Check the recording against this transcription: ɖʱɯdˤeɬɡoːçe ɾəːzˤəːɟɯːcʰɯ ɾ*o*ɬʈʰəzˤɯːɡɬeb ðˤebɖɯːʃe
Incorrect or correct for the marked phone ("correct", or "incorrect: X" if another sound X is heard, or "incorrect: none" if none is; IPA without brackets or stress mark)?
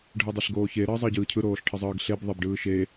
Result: incorrect: oː